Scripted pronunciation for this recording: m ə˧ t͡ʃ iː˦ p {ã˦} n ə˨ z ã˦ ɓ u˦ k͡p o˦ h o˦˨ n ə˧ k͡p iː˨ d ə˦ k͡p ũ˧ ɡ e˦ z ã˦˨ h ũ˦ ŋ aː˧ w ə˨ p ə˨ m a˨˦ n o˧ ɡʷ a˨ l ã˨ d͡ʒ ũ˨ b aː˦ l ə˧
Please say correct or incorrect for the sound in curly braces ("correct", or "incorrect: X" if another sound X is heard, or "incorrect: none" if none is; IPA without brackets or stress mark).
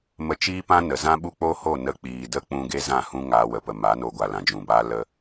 correct